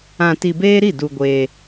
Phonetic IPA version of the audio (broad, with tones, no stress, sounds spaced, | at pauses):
ã˧ t i˧ b eː˦ ɾ i˦˨ d u˧ ɡʷ eː˧